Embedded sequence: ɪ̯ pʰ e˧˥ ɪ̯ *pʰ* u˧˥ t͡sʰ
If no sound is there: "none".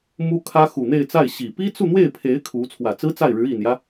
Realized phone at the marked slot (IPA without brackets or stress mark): kʰ